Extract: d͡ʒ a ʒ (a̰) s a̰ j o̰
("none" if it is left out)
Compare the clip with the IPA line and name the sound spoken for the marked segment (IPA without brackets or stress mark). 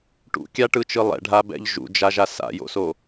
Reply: a